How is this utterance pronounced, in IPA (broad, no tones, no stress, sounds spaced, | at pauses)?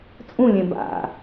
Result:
t͡sʼ ũ lʲ ẽ b a̰